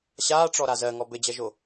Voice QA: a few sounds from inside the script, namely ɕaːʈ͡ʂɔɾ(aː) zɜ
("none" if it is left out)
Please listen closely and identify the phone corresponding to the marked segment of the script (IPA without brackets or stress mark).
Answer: a